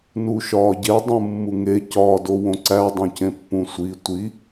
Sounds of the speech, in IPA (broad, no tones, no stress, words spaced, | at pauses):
nuʃɒːɟe dˤũmːuŋe cɒːdowõǀæ dˤõcẽpːũsʷi tʷi